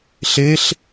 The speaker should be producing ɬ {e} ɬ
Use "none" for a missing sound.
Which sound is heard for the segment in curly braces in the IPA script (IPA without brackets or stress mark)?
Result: e